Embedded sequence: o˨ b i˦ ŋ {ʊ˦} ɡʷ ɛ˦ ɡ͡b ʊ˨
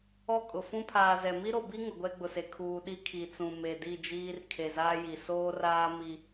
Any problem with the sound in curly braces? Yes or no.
yes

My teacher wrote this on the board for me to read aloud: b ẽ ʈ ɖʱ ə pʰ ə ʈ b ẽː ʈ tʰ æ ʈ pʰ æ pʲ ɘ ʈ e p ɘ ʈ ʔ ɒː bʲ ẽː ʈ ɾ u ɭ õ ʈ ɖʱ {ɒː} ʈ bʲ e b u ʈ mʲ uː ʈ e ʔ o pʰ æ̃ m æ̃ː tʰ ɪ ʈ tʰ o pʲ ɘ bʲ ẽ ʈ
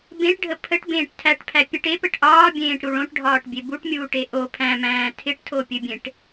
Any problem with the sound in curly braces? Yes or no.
no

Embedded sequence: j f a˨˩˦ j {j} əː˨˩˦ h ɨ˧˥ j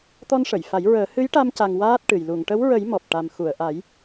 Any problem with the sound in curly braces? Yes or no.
yes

